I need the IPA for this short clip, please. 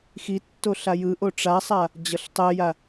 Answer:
xitːo ɬajɯʔo ʈ͡ʂasˤa | d͡ʑʌɬtˤɛja

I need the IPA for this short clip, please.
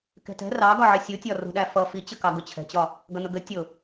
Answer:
kɛ̤tɛ̤ rɑ ɡɒʕisʲutʲɒ rṳ ɗæfʌ fit͡ɕəkɑ ɡʊt͡ɕʰɛ̤t͡ɕɒ | ɡʌnʊɡə tʲʊ

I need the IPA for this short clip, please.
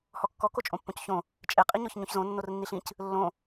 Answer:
hɔkːɔ kot͡ʃʼõpːõcçõ | t͡ʃʼe qʼiɲɔçɲõçzõ nːornːiɬĩc | lːõ

